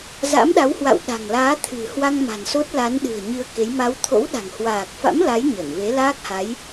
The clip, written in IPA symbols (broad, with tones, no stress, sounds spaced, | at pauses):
z a̰˧˥ m ɗ a˨˦ w h w a̰˧˨ w ɗ a̤˨˩ ŋ l aː˨˦ t̪ʰ ɨ̤˨˩ h w a˧ ŋ m a̤˨˩ n s o˦˥ t̚ l a˨˦ n ɗ ɨ̤˨˩ ə̯ ɲ ɨ˧ ə̯ k e˨˦ j m a˨˦ w t̪ʰ o̰˧˥ w ɗ a̤˨˩ ŋ h w aː˨˩ k̚ f a̰˧˥ m l a˨˦ j ɲ ə˧˩ n v e˨˦ l aː˦˥ k̚ h a˨˦ j